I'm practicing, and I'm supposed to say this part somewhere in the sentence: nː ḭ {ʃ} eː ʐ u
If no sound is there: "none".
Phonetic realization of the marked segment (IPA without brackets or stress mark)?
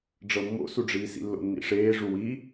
ʂ